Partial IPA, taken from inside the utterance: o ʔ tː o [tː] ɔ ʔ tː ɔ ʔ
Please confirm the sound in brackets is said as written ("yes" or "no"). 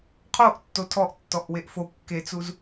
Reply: no